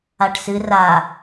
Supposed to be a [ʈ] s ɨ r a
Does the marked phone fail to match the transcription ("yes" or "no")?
no